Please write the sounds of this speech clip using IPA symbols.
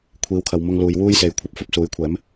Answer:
kʷʰ iː˨˧ w kʰ ɐ˨ w m ʊ˧ ŋ l uː˨ j w uː˥ j s e˨ j kʷʰ ɐ˧ p̚ f ɐ˥ p̚ s uː˨˥ j kʷʰ ɛː˨˥ m

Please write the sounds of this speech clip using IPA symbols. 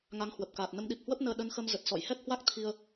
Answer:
ŋ a˨˦ ŋ h w ə˨˩ p̚ k aː˨˩ t̚ n ə˨˦ m ɗ i˨˩ p̚ h w ə˦˥ p̚ n əː˧ ɗ ə˨˦ n x ə˧ m z ə˨˩ t̚ s ɔ̰˧˨ j h ɛ˦˥ k̚ h w a˦˥ k̚ t̪ʰ i˧ ə̯

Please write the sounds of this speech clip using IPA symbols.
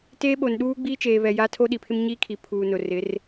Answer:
t eː˦ ɓ o˨ n ɗ uː˦ ɡ͡b iː˦ t͡ʃ eː˨ β ɛ˨ j a˦ tʰ o˦ ɗ i˨ pʰ ɪ˦ m ɲ iː˦ kʰ i˨ pʰ uː˨ n ʊ˨ r ɪ˨˦ r

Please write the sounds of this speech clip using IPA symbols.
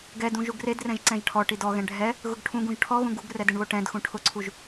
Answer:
ɡ ɛ d ũ ʒ u ɡ r e d r ɛ̃ ʒ ǀ ɛ̃ ʒ ʈʰ ɔ ʈ i d ɔ ɣ ɛ̃ ɖʱ ɛ | ɣ ʊ ɡ ʈʰ ũ ɡ ũ ʒ ʈʰ ɔ ɣ ũ ɡ u ɡ r ɛ d ɪ ɳ β o ʈ ɛ̃ d x ũ ʈʰ ʊ ǀʰ u ʒ

